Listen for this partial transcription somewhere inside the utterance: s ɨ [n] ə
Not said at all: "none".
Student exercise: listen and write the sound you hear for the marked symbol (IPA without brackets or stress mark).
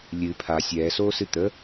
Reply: t̪